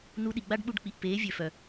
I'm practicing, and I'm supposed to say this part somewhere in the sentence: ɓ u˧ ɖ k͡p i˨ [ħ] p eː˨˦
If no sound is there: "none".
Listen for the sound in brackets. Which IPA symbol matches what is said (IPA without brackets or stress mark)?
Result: ʔ